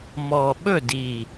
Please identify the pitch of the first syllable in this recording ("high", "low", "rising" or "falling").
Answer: low